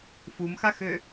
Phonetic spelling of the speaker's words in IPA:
f u m x a x ø

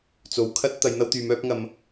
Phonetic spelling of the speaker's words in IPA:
t͡s o˨˧ w kʰ ɐ˥ t̚ t̪ ɐ˨˧ j n̪ ɐ˥ w t̪ yː˨˧ m œː˥ p̚ ŋ ɐ˧ m

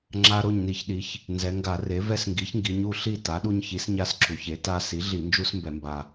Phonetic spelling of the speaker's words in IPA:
ŋ͡ǁ a˦ ɾ o˥˨ ɲ n i˧˩˧ ç ɗ i˩˥ ç | n z ɛ˩˧ ŋ ɡ a˧˩˧ r e˩˥ v ɛ˦ s ŋ ɡ i˩˥ ç ŋ ɡ i˩˧ ɲ u˥˨ ɬ i˥˨ t a˩˥ ɗ u˦ ɲ ç i˩˥ s ɲ a˦ s ǁ u˩˧ ç e˩˥ t a˦ s i˩˥ ɮ i˧˩˧ n d͡ʒ u˦ s m b ɛ˧˩˧ m b a˨˩

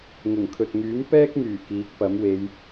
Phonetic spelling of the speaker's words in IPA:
ŋ ʊ˨˩ ŋ kʰ ɵ˨ t̚ ŋ yː˨˥ m p ɛː˥ k̚ m yː˨˩ k iː˨˥ k̚ p ɐ˨˥ m w e˨˧ j

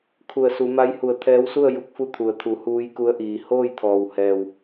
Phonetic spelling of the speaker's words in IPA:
kʰ u˧˩ ə̯ s u˩˧ m a˧˥ j h u˧˩ ə̯ t̪ʰ ɛː˧˥ w s u˥˨ ə̯ j u˧˥ k̚ f u˥˨ t̪ʰ u˩ ə̯ t̪ʰ u˩˧ h uː˧˥ j k u˧˥ ə̯ ʔ iː˩ h oː˥˨ j t̪ʰ ɔː˩ w h ɛː˩ w

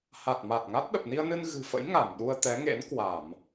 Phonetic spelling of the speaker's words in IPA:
h a˨˩ t̚ m a˨˩ t̚ ŋ a˦˥ t̚ ɗ ə˨˩ p̚ n i˧ ə̯ n ɨ˧ n ɣ ɨ̤˨˩ f ə̰˧˥ j ŋ a˧˩ m ɗ u˧ ə̯ t̪ ɛ˨˦ ŋ ḛ˧˥ n k w a˧˩˨ m

